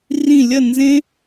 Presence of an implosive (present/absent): absent